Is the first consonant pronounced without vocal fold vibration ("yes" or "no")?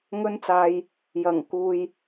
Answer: no